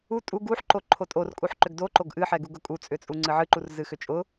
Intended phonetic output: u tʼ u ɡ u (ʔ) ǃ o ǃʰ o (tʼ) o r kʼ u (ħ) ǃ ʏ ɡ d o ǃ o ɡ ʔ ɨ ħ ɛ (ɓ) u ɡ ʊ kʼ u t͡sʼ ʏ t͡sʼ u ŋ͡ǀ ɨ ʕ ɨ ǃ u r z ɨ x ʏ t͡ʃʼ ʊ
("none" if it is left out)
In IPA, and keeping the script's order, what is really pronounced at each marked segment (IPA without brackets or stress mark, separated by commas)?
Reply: ħ, tʼ, ħ, ɡ